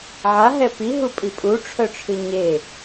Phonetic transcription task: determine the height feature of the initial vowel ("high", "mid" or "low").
low